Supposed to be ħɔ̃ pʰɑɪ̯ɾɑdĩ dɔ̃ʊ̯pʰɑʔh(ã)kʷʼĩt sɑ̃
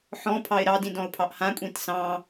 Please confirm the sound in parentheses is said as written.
yes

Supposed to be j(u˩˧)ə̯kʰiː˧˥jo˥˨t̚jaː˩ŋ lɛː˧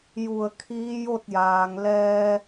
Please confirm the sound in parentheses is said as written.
no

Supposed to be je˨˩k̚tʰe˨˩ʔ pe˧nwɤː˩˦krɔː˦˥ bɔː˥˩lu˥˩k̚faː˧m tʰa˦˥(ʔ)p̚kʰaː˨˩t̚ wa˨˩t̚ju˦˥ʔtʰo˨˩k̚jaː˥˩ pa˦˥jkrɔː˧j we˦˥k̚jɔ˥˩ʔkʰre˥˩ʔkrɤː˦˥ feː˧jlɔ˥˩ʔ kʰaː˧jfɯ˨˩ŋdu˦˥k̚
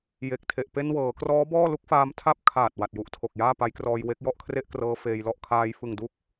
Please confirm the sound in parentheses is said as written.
no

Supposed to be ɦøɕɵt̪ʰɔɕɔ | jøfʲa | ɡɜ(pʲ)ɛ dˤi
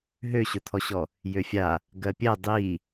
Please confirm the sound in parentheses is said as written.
yes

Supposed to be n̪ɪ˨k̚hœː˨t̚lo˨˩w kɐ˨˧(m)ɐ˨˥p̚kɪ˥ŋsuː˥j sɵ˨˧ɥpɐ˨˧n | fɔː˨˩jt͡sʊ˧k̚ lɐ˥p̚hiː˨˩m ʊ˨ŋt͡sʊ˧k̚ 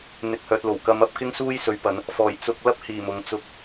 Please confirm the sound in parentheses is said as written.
yes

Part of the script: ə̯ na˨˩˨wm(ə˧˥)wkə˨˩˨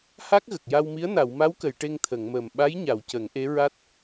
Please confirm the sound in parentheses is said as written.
no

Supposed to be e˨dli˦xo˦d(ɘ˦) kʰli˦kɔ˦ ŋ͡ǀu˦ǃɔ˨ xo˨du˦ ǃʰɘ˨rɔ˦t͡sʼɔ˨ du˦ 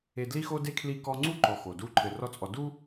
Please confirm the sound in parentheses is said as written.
no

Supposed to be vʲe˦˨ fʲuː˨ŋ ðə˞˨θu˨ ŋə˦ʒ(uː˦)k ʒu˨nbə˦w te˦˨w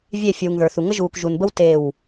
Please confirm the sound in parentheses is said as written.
no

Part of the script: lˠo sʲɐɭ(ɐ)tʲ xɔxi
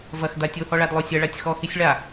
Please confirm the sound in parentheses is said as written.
no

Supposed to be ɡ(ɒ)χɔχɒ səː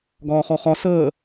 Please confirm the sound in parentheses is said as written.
no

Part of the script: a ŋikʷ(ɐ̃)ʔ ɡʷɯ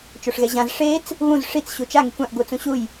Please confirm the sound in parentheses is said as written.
no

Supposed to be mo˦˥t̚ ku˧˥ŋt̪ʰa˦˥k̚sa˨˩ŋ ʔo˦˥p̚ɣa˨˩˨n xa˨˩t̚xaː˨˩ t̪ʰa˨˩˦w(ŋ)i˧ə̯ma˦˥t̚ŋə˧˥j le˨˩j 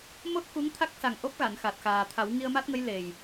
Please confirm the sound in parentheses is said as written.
yes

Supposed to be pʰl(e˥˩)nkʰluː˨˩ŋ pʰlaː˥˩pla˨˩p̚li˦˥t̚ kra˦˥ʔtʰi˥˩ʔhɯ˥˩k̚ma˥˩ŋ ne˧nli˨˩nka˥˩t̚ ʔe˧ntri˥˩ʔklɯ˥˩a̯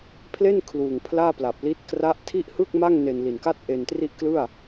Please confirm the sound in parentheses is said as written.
yes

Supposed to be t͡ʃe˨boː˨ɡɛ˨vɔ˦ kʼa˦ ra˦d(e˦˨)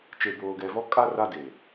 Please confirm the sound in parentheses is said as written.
no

